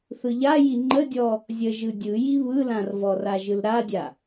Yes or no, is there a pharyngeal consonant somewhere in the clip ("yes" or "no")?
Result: no